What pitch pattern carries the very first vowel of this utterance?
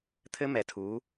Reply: high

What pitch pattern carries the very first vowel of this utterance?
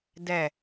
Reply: low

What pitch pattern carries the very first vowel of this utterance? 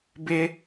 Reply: high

